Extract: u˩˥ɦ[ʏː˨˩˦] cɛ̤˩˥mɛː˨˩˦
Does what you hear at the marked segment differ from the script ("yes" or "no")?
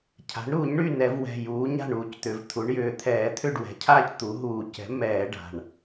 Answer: yes